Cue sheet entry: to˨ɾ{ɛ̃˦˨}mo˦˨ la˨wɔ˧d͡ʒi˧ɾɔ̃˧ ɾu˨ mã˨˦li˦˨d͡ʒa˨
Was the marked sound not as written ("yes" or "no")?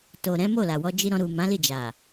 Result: yes